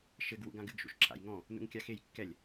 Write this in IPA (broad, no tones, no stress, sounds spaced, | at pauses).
ʃ ɘ ɡ w ṵ ɡ ã ɡ ɨ ɡ ʃ ṵ ʃ ǁ a̰ j ŋ ɔ̃ | n ṵ ŋ kʲ a x e j kː ɛ lʲ